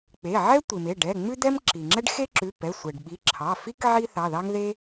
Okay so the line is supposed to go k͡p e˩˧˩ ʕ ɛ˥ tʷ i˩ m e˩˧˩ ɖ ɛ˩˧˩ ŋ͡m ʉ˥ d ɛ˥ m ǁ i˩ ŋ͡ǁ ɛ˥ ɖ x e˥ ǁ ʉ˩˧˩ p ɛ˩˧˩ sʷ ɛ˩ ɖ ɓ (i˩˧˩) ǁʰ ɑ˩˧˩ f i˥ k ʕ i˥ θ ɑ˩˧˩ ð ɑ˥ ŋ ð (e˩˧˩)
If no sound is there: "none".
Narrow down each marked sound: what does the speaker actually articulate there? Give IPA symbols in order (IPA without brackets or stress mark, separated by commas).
i˩˧˩, e˥